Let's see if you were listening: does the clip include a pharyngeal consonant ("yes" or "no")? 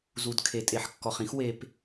yes